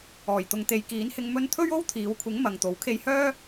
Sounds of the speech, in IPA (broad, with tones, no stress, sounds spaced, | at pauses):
ɔː˨˩ j t̪ ʊ˨ ŋ t̪ e˨ j k iː˨˥ n h ɪ˧ ŋ m ɵ˥ n t̪ʰ ɵ˥ ɥ o˥ w t̪ʰ iː˨˧ w kʷʰ ɪ˨˥ ŋ m ɐ˨ ŋ t̪ o˨˥ w kʰ e˧ j h œː˥